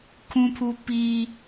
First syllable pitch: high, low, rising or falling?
high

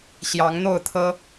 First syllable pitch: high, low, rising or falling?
rising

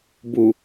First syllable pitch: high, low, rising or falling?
low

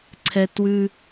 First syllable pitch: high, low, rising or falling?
high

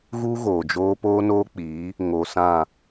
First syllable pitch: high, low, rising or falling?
high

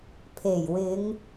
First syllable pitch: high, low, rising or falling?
low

